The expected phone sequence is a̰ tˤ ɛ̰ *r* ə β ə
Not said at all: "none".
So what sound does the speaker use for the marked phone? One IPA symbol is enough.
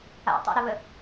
ɾ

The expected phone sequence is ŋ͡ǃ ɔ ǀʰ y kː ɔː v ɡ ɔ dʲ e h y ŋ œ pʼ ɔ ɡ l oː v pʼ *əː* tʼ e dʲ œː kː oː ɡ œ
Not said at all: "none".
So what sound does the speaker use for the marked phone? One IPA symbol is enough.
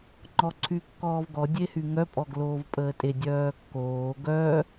əː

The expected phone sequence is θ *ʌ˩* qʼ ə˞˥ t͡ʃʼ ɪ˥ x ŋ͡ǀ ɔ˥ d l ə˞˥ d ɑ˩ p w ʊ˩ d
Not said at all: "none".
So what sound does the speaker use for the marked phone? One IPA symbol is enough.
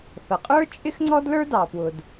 ʌ˩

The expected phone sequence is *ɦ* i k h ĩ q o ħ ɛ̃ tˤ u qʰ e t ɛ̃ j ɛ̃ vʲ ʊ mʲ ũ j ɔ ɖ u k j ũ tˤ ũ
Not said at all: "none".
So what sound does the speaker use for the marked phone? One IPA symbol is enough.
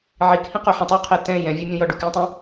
ʕ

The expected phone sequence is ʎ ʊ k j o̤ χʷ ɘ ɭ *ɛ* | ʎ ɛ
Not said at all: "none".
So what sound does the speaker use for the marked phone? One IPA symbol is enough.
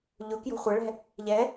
ɛ̤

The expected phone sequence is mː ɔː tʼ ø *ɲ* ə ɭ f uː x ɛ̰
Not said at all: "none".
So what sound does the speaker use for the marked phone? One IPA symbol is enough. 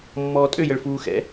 j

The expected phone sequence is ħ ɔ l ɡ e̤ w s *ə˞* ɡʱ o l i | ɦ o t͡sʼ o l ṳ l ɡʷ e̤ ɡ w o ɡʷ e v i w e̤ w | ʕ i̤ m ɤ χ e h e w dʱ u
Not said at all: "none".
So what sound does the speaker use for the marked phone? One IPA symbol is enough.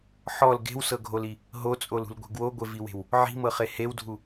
ɤ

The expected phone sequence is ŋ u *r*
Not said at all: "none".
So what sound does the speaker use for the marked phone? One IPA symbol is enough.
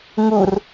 r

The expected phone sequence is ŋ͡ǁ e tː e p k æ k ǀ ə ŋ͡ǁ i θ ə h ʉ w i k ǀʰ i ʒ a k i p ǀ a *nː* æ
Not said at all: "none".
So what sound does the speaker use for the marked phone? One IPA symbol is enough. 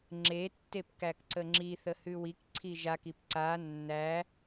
nː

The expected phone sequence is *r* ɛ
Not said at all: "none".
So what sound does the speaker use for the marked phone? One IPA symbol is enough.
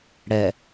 ɽ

